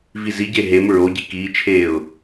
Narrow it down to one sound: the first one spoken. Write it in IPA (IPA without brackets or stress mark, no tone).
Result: v